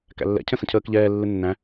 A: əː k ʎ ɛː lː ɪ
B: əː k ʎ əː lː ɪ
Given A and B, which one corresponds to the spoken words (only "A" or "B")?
A